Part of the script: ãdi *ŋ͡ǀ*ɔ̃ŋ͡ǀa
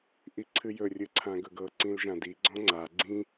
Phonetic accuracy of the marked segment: incorrect: ɡ͡ǀ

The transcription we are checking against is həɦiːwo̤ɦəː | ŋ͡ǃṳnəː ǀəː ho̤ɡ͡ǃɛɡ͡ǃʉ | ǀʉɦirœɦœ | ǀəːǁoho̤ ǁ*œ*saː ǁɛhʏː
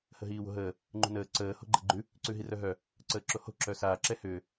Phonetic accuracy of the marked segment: correct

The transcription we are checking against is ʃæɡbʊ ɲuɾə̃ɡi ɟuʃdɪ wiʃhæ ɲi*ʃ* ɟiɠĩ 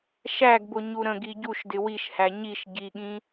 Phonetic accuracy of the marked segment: correct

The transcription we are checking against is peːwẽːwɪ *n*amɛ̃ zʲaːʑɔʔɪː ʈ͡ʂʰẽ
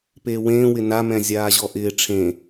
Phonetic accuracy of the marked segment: correct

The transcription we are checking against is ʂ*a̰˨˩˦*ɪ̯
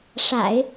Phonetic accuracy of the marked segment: correct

